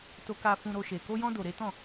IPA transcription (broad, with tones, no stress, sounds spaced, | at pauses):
t o˧ k a˧ f ũ˧ ɾ o˧ ʃ e˨ k o˧ j ɔ̃˧ d o˨ ɾ e˨˦ t ɔ̃˦˨